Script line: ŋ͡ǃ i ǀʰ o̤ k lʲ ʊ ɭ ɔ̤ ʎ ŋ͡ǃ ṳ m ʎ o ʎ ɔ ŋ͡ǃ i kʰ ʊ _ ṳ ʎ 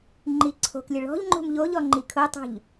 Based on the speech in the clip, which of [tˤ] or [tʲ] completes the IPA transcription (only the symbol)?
tˤ